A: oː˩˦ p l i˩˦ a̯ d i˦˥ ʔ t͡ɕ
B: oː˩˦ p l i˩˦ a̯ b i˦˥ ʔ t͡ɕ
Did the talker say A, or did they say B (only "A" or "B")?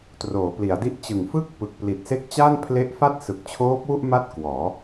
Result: A